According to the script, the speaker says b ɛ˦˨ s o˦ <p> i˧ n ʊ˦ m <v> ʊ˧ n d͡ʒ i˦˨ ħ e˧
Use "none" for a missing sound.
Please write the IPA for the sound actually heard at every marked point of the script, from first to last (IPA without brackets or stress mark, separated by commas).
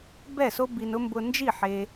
b, b